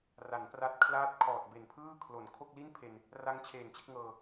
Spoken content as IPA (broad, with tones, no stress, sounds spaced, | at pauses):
r a˩˦ n p r a˦˥ t̚ kʰ l aː˦˥ t̚ kʰ ɔː˨˩ t̚ b e˨˩ n pʰ ɯː˥˩ kʰ l o˨˩ n kʰ o˥˩ k̚ l i˥˩ n pʰ e˧ n | r a˦˥ ŋ t͡ɕʰ eː˨˩ n t͡ɕ e˥˩ k̚ ŋ ɤː˧